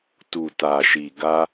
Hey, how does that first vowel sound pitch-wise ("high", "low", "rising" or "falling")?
low